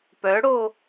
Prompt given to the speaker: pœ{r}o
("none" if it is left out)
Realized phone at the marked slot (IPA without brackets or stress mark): ɽ